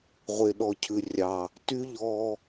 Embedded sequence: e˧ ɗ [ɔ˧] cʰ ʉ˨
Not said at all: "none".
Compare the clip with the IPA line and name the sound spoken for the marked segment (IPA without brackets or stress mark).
ɔ˧